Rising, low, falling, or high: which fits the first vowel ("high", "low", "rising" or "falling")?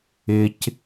high